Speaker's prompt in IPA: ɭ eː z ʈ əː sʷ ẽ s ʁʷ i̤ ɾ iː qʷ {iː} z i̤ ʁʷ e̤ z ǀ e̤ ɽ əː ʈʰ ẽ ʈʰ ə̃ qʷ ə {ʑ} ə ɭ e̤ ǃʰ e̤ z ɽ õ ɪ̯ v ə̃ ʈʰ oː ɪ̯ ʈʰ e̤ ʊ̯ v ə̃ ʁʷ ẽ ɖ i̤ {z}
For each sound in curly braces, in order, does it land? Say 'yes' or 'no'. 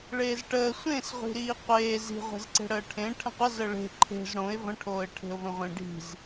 no, no, yes

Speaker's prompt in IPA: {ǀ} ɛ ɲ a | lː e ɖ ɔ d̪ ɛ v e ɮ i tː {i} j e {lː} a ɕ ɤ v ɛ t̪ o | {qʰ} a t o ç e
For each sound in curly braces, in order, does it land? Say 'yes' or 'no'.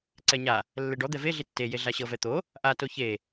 yes, no, no, no

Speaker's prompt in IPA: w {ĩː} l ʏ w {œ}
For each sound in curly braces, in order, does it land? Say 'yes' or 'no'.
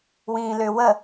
yes, no

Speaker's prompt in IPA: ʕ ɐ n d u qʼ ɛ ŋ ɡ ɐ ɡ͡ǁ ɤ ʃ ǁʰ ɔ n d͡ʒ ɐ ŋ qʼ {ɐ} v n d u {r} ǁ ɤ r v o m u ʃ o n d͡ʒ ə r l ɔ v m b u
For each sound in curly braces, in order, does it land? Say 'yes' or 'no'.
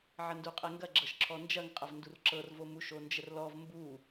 yes, yes

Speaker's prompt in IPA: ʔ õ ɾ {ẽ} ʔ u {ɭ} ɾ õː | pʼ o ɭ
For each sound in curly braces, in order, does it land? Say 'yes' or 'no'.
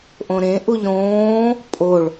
yes, no

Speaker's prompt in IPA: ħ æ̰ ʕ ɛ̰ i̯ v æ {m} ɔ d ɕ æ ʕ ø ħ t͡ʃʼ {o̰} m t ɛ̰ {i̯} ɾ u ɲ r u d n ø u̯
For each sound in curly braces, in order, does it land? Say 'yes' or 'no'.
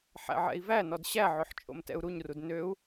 no, yes, no

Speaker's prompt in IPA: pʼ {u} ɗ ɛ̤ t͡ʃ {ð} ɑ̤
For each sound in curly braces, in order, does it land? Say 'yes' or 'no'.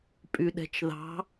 no, yes

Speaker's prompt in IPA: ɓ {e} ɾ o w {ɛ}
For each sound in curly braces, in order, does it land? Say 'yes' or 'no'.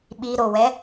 no, yes

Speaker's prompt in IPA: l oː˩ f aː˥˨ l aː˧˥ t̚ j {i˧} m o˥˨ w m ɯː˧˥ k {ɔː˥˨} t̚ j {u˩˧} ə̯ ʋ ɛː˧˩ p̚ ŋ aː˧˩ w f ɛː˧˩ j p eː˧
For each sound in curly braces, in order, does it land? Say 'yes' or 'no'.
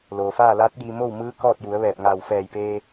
yes, yes, yes

